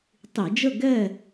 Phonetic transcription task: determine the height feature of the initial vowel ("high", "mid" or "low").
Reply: high